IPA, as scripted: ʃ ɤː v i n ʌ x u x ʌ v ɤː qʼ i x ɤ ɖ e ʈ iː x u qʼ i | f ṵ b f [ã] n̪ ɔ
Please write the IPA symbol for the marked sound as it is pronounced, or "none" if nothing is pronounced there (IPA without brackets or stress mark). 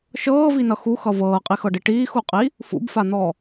a